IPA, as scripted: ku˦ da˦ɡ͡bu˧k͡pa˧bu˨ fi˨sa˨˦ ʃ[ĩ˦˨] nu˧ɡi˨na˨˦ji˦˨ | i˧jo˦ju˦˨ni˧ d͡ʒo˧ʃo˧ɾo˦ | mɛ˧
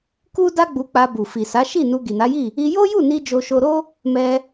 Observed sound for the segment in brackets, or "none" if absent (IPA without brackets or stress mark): i˦˨